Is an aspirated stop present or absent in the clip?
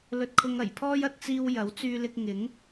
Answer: present